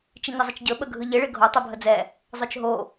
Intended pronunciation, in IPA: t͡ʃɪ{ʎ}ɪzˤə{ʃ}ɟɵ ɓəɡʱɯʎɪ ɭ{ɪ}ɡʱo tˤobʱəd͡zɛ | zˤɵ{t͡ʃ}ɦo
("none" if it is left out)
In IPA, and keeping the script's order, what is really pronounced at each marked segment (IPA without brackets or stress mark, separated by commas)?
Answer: ɲ, t͡ʃ, ɪ, t͡ʃ